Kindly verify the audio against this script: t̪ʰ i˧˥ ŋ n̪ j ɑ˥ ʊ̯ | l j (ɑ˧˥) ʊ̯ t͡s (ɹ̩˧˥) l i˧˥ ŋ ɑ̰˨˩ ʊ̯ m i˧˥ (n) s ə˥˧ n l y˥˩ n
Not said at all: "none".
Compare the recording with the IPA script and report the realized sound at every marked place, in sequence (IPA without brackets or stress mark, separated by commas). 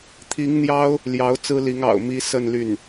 ɑ˧˥, ɹ̩˥, none